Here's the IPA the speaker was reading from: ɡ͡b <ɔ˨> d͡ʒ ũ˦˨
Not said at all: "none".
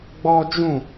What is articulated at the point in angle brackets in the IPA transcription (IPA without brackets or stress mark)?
ɔ˦